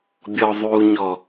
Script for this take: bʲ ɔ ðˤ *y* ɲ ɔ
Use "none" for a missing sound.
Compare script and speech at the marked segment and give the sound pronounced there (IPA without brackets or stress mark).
u